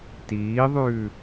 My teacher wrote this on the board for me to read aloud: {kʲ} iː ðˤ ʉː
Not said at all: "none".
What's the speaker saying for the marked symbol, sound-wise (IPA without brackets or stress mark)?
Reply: t